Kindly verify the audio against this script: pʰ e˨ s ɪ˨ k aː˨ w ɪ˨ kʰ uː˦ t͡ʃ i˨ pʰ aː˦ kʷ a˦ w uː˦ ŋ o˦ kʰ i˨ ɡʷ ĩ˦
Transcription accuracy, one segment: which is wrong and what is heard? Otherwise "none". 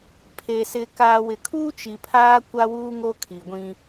none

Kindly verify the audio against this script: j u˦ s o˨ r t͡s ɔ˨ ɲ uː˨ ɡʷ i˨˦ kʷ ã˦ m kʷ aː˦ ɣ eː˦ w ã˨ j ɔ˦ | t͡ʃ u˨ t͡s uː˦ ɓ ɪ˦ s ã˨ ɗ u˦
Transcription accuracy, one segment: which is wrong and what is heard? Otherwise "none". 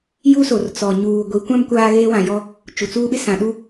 none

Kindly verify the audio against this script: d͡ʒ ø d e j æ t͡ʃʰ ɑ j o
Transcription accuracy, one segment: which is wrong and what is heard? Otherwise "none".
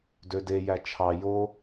d͡ʒ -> d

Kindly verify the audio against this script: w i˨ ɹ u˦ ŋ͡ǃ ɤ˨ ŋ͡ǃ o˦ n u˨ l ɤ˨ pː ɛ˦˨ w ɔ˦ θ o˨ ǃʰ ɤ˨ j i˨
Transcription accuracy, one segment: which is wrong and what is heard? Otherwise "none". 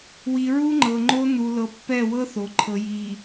ɔ˦ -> ɤ˦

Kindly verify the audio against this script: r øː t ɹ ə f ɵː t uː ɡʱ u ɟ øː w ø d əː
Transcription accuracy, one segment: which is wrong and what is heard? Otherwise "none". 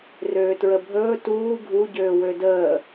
f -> bʱ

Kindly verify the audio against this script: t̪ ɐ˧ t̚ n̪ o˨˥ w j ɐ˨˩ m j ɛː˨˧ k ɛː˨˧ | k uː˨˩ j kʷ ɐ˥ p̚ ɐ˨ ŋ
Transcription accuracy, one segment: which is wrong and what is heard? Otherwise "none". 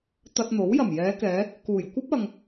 none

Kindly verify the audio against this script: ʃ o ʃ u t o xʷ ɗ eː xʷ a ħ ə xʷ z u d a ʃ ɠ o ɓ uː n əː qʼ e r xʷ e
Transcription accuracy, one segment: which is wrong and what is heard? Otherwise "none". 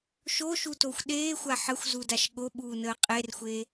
none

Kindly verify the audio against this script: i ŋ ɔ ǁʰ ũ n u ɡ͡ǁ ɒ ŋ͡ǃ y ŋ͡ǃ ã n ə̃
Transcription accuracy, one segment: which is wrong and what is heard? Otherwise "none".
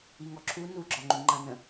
ũ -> u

